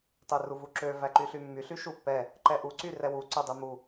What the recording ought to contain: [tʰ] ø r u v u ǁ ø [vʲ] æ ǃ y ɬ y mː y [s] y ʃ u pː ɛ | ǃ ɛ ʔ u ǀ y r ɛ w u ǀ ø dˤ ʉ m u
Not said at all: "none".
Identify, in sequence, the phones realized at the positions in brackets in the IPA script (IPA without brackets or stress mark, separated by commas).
tˤ, v, ɬ